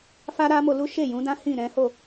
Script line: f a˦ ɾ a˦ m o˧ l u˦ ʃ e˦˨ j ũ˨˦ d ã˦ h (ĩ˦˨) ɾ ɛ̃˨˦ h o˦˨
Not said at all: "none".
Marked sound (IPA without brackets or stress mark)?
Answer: ĩ˦˨